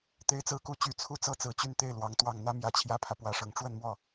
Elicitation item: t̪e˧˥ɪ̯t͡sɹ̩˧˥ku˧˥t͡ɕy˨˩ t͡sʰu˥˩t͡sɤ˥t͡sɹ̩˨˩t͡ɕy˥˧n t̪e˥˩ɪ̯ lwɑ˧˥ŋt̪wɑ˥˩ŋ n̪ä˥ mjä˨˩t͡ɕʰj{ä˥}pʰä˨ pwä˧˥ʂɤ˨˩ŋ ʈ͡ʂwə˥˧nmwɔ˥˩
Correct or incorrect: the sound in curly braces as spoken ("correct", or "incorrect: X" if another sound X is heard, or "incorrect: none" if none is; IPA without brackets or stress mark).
correct